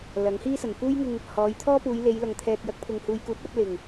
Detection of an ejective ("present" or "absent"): absent